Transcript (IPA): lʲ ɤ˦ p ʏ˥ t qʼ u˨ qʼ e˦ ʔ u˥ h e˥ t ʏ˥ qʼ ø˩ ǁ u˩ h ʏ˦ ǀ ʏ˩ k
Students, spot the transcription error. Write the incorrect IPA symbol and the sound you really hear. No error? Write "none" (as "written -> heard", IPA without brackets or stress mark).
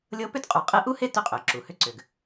k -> ɡ